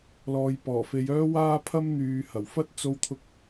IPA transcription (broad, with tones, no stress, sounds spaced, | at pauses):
l ɔː˨ j p ɔː˨˩ f e˨˧ j œː˥ w aː˥ pʰ ɐ˥ m n̪ yː˨ h ɐ˨˩ w f ɐ˥ t̚ t͡s o˧ w t̪ʰ ʊ˧ k̚